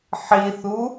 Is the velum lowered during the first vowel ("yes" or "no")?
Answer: no